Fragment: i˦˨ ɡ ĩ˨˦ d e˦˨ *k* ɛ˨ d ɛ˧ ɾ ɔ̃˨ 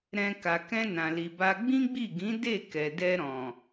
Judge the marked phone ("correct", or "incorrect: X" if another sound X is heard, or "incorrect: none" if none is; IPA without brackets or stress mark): correct